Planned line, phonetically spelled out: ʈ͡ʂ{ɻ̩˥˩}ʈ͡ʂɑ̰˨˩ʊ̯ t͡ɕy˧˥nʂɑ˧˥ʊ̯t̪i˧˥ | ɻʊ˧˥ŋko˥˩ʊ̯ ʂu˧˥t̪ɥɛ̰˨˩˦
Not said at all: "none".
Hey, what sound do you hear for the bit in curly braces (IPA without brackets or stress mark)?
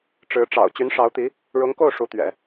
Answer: ɻ̩˧˥